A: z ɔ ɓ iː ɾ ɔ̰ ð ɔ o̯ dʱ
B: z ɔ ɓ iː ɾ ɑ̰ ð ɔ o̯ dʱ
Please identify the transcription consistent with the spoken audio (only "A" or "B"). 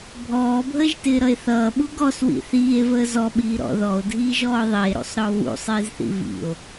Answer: A